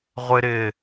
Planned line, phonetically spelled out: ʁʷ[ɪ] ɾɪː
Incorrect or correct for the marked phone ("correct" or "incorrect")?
correct